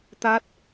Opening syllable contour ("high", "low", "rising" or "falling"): rising